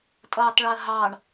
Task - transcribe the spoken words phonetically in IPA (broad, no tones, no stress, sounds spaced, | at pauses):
tʼ ʌː tˤ ɭ əː ɦ ɑː ɳ